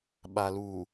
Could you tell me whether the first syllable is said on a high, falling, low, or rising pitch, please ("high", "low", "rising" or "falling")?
low